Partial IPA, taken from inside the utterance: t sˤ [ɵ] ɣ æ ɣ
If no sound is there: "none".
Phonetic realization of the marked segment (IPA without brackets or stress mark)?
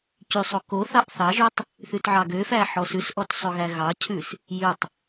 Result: ɵ